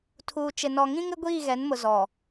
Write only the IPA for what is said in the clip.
tʰ uː˨ t͡ʃ ɪ˨ n ɔ˨ ŋ ĩ˦ ŋ ɪ˦ ɡʷ iː˦˨ ɣ ɛ˨˦ n m ʊ˨ z ɔ˨

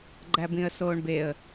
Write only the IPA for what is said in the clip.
ɡ͡ǃ æ b ĩ ə̯ s oː ɳ b e ə̯

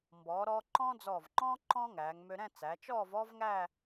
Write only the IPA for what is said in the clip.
m b ɔː˩˧ ɾ ɔː˧ ǃ ɔ̃˥ d͡z ɔː˧˩ v ŋ͡ǃ ɔ̃ː˥ ǃ ɔ̃˥ ŋ æː˩˧ ŋ m ø˧ ɾ ɛ̃˥˧ t͡s æ˩˧ t͡ʃ ɔː˥˧ v ɔ˥ v ŋ æ˥˧

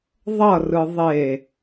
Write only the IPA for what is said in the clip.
ðˤ ʌ r ɯ ðˤ e

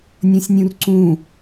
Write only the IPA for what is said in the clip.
nʲ ɔ̃ sʲ nʲ ũ r ǀ ũ

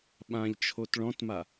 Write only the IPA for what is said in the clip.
ɓ ã ʎ t͡ʃʰ o t ɭ ɔ̃ t m a

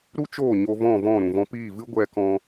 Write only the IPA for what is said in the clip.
ɾ u˦ t͡ʃ oː˦˨ ɲ o˧ v ɔ̃˦˨ v ɔ̃˦˨ ɾ ũ˨ v ɔ̃˧ p iː˦˨ v ɨ˦ ɡʷ ɛ˦ k ɔ̃˦

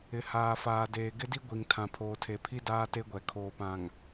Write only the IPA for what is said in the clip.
ɪ˨ h aː˨ f aː˨ d eː˨ ɡ ɪ˦ d i˦ ɡʷ i˨ ŋ tʰ ã˨ pʰ oː˨ tʰ e˨ pʰ i˦ d aː˦ t e˦ ɡʷ ɛ˨ kʰ oː˨ p ã˨ ŋ

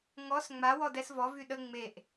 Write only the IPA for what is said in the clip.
ŋ ɔ s ŋ͡m a w ɔ d ɛ s v ɔ v y ɗ ə ŋ͡m e ʔ

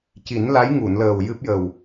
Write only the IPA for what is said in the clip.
c i˨˩˦ n l a˧˥ j ŋ u˨˩˨ n l əː˨˩ w j ɨ˦˥ p̚ j ə˨˩ w

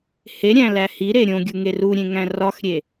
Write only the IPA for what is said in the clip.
h e ɾʲ æ̃ l æ h i ɾ e ɾʲ õ ɡʲ u ŋ e r u ɾʲ ẽ ŋ æ̃ r ɒ x ɾʲ e

